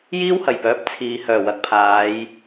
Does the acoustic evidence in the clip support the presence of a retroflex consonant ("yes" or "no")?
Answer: no